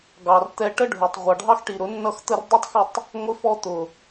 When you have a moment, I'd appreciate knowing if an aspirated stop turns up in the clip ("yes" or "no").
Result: no